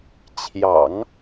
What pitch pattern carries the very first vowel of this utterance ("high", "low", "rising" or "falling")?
low